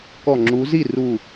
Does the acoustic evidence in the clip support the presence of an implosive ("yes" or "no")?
no